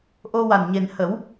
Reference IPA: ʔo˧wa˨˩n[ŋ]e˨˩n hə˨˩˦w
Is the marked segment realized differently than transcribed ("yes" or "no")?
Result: yes